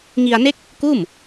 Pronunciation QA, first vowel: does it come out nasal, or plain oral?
oral